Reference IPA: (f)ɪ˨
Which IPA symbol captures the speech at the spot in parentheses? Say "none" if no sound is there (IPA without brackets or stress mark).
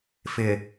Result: f